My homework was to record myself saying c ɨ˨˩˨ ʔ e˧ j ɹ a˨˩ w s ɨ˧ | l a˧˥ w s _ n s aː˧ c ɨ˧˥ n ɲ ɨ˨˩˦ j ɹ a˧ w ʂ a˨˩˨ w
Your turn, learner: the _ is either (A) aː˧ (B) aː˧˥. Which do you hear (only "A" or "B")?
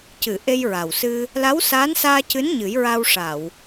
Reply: B